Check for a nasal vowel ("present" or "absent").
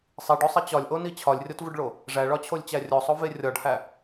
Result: absent